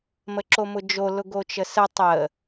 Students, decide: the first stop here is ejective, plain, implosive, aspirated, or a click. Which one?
click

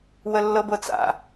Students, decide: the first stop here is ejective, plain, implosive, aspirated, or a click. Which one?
plain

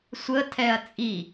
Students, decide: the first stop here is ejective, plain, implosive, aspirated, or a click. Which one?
aspirated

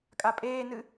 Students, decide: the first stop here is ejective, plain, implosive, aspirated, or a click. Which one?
ejective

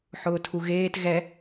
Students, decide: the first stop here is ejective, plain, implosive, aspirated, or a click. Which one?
aspirated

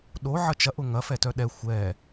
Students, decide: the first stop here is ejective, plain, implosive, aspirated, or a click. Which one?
implosive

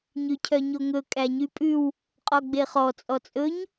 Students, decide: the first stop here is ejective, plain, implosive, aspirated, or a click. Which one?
aspirated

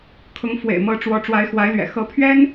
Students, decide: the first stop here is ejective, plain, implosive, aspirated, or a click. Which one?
aspirated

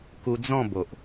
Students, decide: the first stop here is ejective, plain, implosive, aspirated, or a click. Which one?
plain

